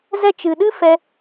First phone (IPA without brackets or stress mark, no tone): z